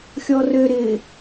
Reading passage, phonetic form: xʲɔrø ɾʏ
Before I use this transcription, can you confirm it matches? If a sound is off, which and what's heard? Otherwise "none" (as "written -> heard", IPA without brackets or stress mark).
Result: ʏ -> ɪ